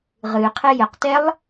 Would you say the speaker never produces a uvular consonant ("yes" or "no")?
no